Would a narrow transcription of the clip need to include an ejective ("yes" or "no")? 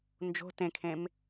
no